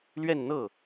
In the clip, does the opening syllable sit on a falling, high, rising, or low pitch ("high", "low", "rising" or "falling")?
falling